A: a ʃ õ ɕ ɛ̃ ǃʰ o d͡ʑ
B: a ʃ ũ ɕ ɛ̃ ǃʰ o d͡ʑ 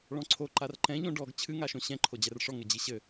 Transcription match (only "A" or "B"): A